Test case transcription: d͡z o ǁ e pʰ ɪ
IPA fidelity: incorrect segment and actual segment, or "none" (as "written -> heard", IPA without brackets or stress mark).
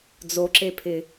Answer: none